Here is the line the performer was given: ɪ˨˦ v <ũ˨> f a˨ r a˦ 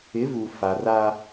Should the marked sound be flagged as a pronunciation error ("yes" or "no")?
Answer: yes